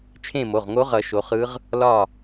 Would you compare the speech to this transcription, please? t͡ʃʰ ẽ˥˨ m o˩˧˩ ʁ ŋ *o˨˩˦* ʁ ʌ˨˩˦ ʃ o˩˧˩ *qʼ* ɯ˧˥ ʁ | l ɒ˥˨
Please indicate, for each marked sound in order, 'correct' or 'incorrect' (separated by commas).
incorrect, incorrect